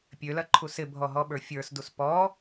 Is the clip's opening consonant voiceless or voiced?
voiceless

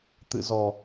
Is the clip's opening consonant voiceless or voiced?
voiceless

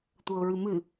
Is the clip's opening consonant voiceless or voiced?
voiceless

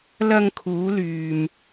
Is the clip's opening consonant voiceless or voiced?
voiced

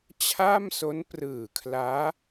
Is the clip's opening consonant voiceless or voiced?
voiceless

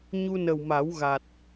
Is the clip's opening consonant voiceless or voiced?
voiced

